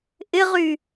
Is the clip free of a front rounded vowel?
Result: no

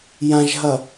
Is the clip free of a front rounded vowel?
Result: yes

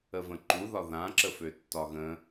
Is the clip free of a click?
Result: no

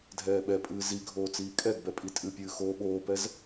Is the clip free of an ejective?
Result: no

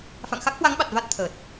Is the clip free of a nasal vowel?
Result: yes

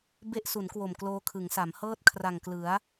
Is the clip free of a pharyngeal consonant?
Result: yes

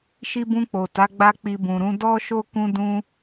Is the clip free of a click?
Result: yes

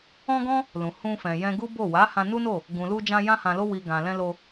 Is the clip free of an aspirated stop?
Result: yes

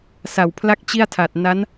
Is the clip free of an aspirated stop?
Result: no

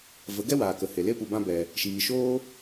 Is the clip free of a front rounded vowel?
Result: yes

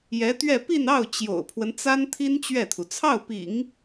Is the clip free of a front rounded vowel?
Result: yes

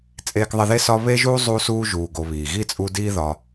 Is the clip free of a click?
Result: yes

